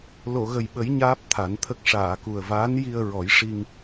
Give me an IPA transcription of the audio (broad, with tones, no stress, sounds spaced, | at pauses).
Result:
l o˨˩˨ ɣ ə˨˩ j ɓ ə˨˩˦ j ɲ aː˦˥ p̚ t̪ʰ a˨˩˦ n t̪ʰ ə˦˥ k̚ ʂ aː˨˩˨ k u˨˩ ə̯ v aː˧˥ n j i˧ ə̯ ɹ ɔ˨˩˦ j ʂ i˧ ŋ